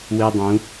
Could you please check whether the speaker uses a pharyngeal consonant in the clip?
no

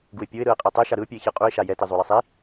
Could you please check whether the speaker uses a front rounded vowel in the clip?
no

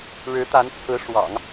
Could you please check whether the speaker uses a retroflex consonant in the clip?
yes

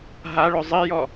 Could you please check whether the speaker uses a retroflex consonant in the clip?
yes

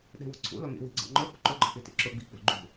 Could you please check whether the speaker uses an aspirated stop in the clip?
yes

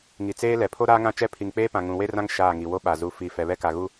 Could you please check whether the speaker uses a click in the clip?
no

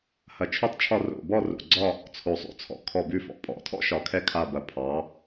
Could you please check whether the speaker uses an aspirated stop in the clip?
yes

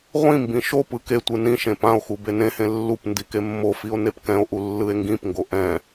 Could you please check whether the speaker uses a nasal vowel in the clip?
yes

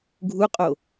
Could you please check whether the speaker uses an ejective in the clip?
yes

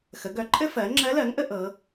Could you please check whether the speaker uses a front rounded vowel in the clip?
yes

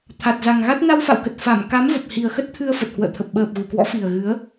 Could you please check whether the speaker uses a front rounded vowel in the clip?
no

